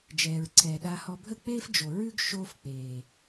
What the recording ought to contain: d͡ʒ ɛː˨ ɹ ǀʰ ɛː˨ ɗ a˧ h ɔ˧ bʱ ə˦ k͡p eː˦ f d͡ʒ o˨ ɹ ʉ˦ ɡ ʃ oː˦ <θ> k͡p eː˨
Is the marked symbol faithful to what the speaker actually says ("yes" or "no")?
no